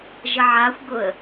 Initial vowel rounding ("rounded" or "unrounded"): unrounded